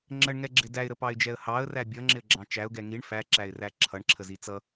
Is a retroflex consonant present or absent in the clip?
present